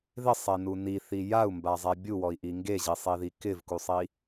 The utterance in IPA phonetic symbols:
ð ɪ sˤ e n u n i θ i j a u̯ m b a zˤ ɛ bʲ u w ɔ i̯ ʔ i ŋ ɡ e ʑ i sˤ i ð i k ɪ v k u sˤ i

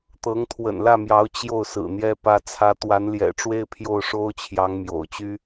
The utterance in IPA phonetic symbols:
t̪ ɤ˧˥ ŋ t̪ʰ w ə̰˨˩ n l ä˥˩ m j ɑ˧˥ ʊ̯ t͡ɕ j o˥˩ ʊ̯ s ɹ̩˨˩ n̪ j ɛ˥ p ä˥ t͡sʰ ä˥ t̪ w a˧˥ n l j ɛ̰˨˩ ʈ͡ʂ w e˥˧ ɪ̯ pʰ j o˥˩ ʊ̯ ʂ o˥ ʊ̯ t͡ɕʰ j ɑ˧˥ ŋ m j o̰˨˩ ʊ̯ t͡ɕ y˥

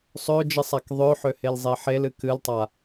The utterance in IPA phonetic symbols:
sˤ ø d͡ʒ ɨ sˤ a k ðˤ ø ħ ø h e l zˤ e ħ e l ɨ k ɨ l tˤ a

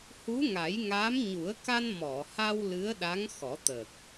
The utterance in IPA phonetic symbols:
h u˧˥ ŋ a˨˩˦ j ŋ aː˧˥ m ɲ u˨˩˦ ə̯ k a˧ n m ɔ˨˩˨ h a˧ w l ɨ˧˥ ə̯ ɗ a˧˥ ŋ x ɔ˨˩˦ t̪ əː˨˩ k̚

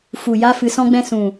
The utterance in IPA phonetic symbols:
f u˨ j a˧ f ɨ˧ s ɔ̃˦ ɡ͡b ɛ̃˦ s ũ˨

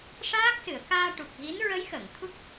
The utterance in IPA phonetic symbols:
ʂ aː˦˥ k̚ s ɨ˨˩˨ ə̯ k aː˧ ʈ u˨˩ k̚ ɣ i˧˥ n ɹ ə˧˥ j x əː˨˩˨ ŋ t̪ʰ u˦˥ k̚

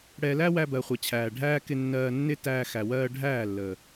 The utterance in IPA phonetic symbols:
ɽ ɛ˧ l æ˦ w æ˧ b ɜ˨ χʷ ɛ˨ t͡ɕʰ æː˨ ɖʱ æː˦ k ɪ˧ nː ɜː˧ nː ɪ˦ t æː˧ x æ˨ w ɜː˧ ɖʱ æː˦˨ lː əː˨

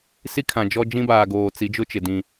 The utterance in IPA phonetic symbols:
s i˦ kʰ ã˨ d͡ʒ ɔ˦ d͡ʒ ĩ˦ b aː˨ ɡ oː˨ t͡s i˨˦ d͡ʒ ʊ˦ t͡ʃ ɪ˨ d ĩ˦

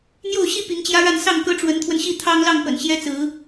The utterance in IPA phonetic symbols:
n̪ j o˥˩ ʊ̯ ɕ i˥ p i˧˥ ŋ t͡ɕ j ä˥ ɻ a˥˧ n s ɑ˥˩ ŋ k ɤ˥ ʈ͡ʂ w ə˧˥ n t̪ʰ w ə˧ n ɕ i˥˩ t̪ʰ ɑ˥ ŋ l ɑ˥˩ ŋ p ə̰˨˩ n ɕ j ɛ˥ t͡s ɹ̩˧˥

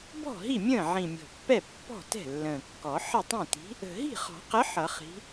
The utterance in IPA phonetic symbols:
b ɔ̤˥˩ ɦ i˥˩ mʲ ə̃ː˥˩ ʕ ĩ˨˩ mʲ ɔ̤˨˩ pː ɛ˥˩ pː ɔ̤˥˩ t ɛ̤˥˩ lː ə̃ː˨˩ kː ɔ˨˩˦ ħ ə˥˩ tˤ ĩ˥˩ t i̤˨˥ | ə̤˨˩ ɦ i̤˥˩ χ ɔ̤˨˩˦ q ə˨˥ ħ ʌ˨˩˦ χ i̤˨˥

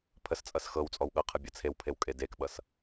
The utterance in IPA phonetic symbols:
pʰ ə s t͡sʼ ʌ s x ɤ w t͡sʼ ɔ w ɠ ʌ qʰ ʌ bʲ ʌ t͡sʰ e w pʰ e w kʼ e d e k ɓ ʌ s

